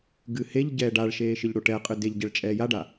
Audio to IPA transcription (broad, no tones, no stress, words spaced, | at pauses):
ɡɨheʎɟɛː ɖaɭʃeː ʃɨʎɽoʈɛqʼɨ deʎ ɟɛɭt͡ʃʼɛːjaɖa